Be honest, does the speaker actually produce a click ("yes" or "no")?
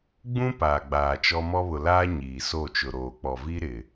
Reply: no